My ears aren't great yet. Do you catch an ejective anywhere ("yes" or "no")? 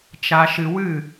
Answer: no